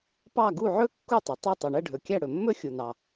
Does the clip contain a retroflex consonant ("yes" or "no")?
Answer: yes